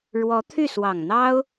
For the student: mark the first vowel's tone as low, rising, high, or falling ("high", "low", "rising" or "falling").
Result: rising